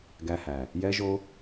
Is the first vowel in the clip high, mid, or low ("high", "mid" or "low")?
low